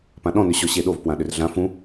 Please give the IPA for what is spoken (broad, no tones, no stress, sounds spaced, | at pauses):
p ã ɗ ɔ̃ n ʏ ɕ ɔ ɕ e ɗ o v p w ã ɗ ʏ r ɮ ã f ũ